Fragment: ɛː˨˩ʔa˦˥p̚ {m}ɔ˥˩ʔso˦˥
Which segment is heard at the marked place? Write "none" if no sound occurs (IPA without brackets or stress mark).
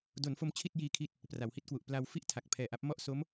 m